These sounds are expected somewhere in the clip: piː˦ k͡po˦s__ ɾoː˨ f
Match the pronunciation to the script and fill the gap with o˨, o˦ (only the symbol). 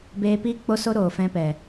o˦